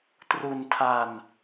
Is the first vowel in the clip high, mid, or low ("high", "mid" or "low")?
high